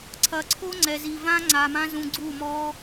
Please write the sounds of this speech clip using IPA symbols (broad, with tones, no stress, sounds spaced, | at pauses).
ǀʰ ɐ˨ ǀʰ o˦ ŋ͡ǀ ɛ˨ z i˨ v ã˦ ŋ͡ǀ a˧ m ã˦ z ũ˧ ɡ͡ǀ u˦˨ m ɔ˦